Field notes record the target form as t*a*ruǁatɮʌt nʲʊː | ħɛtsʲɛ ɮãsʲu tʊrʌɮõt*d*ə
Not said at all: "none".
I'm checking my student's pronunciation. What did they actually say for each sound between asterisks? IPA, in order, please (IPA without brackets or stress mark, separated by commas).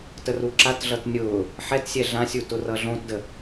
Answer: ə, d